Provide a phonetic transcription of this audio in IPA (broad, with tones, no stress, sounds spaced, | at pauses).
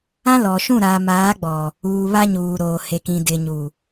ã˦ l ɔ˨ ʃ ũ˦˨ ɾ aː˨ m aː˨˦ ɡ͡b ɔ˨ | uː˨ β a˦ ɲ uː˨ ɾ oː˨ h e˨ k ĩ˨ d ɪ˨ ɲ u˨